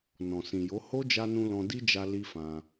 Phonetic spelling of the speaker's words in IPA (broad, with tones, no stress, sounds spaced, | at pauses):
n ɔ̃˨ s ĩ˨ j o˨˦ h o˦ d͡ʒ a˧ n ũ˧ l ɔ̃˧ d i˦ d͡ʒ a˧ l i˦ f ã˧